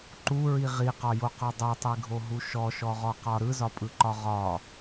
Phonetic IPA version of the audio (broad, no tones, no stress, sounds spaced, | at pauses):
ǃ u ɹ i ʁ i q ɒ j o q ɔ dˤ o tˤ i ɡʱ o ɦ u ʃ ɔ ʃ ɔ ʁ ɔ q ɒ ɾ ɯ z ɒ pʼ ɯ ǃ ɒ ʁ ɒ